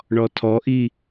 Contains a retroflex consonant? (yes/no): yes